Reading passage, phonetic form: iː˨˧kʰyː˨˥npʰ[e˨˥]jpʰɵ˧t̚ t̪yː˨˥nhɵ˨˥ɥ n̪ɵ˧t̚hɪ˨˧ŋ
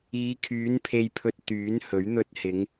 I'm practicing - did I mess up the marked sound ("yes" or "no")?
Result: yes